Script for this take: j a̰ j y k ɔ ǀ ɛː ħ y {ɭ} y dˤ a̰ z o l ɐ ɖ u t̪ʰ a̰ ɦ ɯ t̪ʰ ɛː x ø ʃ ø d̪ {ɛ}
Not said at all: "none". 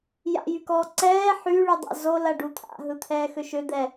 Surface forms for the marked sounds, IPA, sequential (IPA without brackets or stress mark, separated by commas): ɭ, ɛ